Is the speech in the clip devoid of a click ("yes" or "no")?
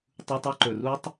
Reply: no